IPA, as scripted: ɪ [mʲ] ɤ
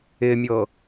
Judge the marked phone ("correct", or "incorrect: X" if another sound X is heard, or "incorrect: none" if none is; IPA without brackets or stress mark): correct